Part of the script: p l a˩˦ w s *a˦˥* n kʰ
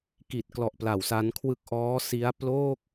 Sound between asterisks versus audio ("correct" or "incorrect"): correct